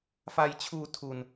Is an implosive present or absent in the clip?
absent